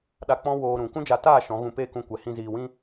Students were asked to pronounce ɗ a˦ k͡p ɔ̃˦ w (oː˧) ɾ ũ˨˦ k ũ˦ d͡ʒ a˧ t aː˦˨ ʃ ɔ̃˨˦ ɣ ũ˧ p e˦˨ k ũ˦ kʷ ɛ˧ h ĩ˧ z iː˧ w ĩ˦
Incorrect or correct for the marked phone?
correct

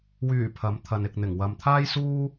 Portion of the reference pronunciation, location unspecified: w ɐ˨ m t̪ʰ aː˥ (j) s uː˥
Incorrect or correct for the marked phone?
correct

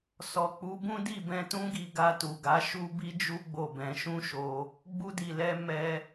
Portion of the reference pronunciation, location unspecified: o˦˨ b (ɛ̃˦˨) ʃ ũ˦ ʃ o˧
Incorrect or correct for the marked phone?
incorrect: ɛ̃˧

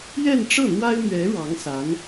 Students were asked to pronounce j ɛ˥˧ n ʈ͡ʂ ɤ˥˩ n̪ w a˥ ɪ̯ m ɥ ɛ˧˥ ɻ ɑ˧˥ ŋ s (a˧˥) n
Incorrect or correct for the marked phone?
correct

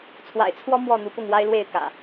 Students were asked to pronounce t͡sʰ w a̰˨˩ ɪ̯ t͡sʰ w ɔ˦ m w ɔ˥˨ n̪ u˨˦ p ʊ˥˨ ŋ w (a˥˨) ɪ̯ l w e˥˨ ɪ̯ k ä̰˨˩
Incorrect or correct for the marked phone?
incorrect: a˦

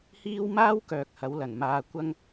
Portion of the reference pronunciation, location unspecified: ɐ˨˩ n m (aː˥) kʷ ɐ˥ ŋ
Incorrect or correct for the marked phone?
incorrect: aː˧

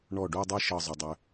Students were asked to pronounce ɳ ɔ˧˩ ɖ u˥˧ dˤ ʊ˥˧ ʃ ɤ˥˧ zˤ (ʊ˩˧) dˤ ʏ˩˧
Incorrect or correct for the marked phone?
correct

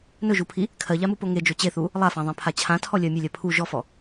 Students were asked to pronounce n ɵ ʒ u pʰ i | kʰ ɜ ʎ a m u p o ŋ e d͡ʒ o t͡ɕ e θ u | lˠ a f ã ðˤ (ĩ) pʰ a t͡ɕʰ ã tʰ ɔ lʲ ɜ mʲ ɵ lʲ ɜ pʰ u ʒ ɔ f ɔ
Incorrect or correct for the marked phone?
incorrect: ẽ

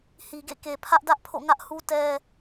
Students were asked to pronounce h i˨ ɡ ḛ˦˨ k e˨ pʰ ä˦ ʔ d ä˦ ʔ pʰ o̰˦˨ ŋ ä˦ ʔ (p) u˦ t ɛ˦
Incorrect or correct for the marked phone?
incorrect: h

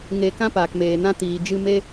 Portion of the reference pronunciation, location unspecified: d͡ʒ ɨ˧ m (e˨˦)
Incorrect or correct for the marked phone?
incorrect: e˧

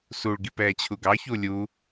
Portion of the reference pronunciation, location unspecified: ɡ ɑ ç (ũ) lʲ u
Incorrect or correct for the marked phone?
incorrect: u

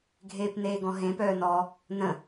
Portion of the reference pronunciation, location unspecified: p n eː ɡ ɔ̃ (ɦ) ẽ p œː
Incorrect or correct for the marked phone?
correct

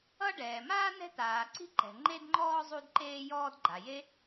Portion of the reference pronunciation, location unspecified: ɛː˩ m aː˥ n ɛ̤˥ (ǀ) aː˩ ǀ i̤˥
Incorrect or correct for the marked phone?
incorrect: t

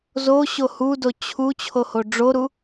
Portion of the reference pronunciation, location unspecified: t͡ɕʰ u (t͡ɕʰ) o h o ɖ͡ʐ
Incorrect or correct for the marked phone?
correct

